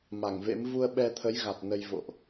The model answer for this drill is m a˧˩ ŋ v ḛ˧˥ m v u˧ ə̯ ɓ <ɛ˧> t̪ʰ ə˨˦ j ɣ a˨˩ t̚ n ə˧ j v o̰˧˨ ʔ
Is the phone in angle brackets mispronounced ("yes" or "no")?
no